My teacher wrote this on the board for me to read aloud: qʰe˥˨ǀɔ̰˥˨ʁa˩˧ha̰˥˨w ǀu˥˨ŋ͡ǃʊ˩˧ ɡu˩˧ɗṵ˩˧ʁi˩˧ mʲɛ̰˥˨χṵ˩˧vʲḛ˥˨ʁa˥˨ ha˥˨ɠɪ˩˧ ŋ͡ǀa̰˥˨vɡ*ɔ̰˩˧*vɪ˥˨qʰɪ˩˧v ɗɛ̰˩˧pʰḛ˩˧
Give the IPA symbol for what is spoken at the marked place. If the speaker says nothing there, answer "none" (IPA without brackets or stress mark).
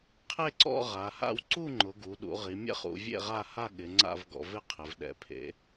ɔ̰˩˧